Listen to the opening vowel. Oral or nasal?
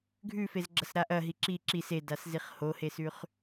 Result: oral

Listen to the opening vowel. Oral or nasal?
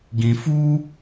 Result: nasal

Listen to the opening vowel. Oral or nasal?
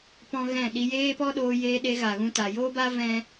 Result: nasal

